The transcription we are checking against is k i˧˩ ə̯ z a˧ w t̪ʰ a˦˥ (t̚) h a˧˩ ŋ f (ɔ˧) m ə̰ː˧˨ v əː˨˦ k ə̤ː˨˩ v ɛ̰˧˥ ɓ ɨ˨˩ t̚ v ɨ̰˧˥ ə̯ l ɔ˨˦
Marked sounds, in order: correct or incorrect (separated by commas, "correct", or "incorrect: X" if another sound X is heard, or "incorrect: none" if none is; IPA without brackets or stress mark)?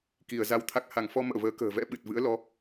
incorrect: k̚, correct